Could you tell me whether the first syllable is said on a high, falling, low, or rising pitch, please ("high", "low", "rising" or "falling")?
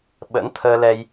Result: rising